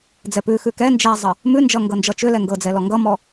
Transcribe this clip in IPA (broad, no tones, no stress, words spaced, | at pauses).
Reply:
d͡zɛpʉ xʉkɛ nd͡ʒɛzˤə | mʉnd͡ʒʌŋɡɤ nd͡ʒʌt͡ʃʏ lɛŋɡɤd͡zɛlɔ ŋɡʌmɔ